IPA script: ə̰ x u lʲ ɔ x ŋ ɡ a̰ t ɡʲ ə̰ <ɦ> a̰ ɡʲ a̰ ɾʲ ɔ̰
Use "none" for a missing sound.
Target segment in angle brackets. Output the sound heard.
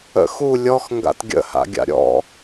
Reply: h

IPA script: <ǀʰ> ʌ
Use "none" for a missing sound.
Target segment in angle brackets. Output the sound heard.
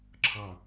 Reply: ǁʰ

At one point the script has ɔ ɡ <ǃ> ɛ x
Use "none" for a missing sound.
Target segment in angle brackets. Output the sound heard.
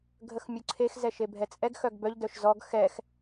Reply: x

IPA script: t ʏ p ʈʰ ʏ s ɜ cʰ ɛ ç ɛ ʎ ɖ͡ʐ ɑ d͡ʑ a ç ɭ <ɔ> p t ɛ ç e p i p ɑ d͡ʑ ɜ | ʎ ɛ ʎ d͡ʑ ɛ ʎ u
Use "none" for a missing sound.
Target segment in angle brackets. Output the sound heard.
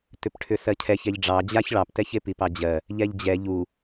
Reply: ɑ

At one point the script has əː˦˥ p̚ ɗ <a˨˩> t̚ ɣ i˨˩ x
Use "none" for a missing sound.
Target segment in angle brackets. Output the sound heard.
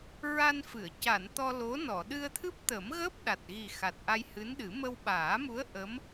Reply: a˨˩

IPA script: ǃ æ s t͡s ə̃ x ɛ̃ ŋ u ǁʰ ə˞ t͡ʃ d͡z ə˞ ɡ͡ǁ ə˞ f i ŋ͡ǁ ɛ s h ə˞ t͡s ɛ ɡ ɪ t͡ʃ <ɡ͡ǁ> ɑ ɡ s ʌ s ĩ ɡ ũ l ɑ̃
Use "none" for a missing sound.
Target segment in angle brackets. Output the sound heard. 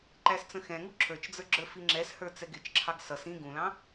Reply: ǁʰ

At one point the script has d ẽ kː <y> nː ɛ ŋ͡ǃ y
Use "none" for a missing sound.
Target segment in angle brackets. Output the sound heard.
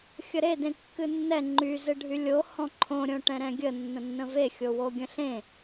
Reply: ɨ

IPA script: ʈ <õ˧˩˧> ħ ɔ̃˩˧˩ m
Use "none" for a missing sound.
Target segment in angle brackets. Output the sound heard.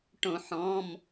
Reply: õ˧˩˧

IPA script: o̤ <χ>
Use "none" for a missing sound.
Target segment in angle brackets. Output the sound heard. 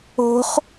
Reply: χ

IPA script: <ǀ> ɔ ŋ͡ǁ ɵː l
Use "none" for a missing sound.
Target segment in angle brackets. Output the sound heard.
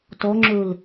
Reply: t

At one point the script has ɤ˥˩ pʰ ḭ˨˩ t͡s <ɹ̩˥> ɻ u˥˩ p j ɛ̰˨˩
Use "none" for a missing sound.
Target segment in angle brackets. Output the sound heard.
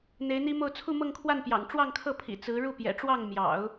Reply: ɹ̩˧˥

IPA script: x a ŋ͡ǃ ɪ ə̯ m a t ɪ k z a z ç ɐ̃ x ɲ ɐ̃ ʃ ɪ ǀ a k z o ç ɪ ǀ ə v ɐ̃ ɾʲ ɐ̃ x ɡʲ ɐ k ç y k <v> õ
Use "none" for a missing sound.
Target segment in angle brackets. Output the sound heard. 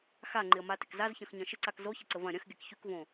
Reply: v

